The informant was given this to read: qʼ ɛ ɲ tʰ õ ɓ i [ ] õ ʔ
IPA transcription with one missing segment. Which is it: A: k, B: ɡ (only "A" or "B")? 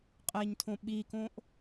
A